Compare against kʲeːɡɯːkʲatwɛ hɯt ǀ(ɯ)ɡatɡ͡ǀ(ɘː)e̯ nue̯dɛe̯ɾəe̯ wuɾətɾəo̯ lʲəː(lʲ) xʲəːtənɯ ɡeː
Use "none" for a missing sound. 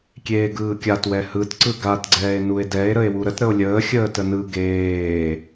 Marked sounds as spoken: ɯ, ɛː, none

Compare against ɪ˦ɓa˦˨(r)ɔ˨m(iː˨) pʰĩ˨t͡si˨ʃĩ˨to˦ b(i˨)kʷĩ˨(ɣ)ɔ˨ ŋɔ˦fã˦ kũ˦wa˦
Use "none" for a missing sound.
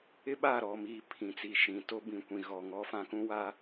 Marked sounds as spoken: ɾ, iː˨, ĩ˨, ɣ

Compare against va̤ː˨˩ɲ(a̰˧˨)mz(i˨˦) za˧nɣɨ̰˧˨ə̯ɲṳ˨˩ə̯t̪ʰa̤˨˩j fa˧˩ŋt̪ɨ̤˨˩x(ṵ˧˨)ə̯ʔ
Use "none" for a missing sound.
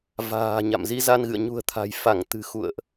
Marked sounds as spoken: a̰˧˨, i˨˦, ṵ˧˨

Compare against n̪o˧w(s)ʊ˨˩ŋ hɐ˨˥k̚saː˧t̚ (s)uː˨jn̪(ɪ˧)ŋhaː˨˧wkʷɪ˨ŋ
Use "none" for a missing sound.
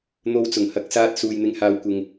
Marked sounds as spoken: t͡s, s, ɪ˨˥

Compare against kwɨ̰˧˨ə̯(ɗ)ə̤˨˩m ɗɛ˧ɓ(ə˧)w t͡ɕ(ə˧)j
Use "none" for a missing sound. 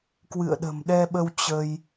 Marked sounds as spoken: ɗ, ə˧, ə˧

